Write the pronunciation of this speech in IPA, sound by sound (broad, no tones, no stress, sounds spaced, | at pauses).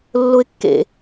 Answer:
lː ʊ ɪ̯ kː ḛ